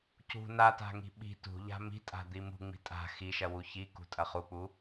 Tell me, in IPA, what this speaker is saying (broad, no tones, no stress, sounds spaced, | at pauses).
c ṳ n a t a̤ ŋ i̤ ɓ i̤ t ṳ ʎ a̤ m i̤ tʼ a̤ d̪ i m ṳ ŋ͡m i̤ tʼ a̤ x i ʃ ɐ w u ç i k ṳ tʼ ɐ χ u k͡p u